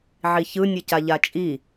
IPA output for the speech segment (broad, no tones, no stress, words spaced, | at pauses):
ʕiçɯ nʲɯcaʎat͡ʃʼi